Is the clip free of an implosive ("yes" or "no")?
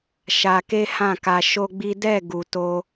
yes